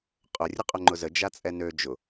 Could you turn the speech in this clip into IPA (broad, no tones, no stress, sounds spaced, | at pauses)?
qʼ ʊ rʲ ʊ qʼ œ ŋ͡ǃ ʊ z ə d͡ʒ a t͡sʼ ɛ n ø d͡ʒ ʊ